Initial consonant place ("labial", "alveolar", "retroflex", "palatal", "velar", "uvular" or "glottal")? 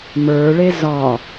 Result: labial